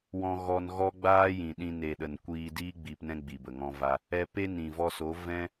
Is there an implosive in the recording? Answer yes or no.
yes